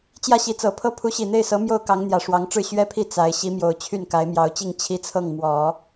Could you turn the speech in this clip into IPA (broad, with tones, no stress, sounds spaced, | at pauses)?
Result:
t͡ɕ j ä˥˩ ɕ i˧˥ t͡s ɤ˨˩ pʰ ɤ˥ pʰ u˧˥ ɕ i˨˩ n̪ e˥˩ ɪ̯ s ɤ˧˥ m j o˥˩ ʊ̯ k ɑ˧˥ ŋ n̪ j ä˨˩ ʂ w ɑ˧˥ ŋ ʈ͡ʂ ɻ̩˥˩ ɕ ɥ ɛ˥ pʰ i˥˩ t͡s a˧˥ ɪ̯ ɕ i˧˥ m j o˨˩ ʊ̯ t͡ɕʰ y˥˩ n k a˧˥ ɪ̯ m j ɑ˧˥ ʊ̯ t͡ɕ i˥˩ ŋ t͡ɕʰ i˥ t͡sʰ ɤ˥˩ ŋ m w ɔ˨˩˦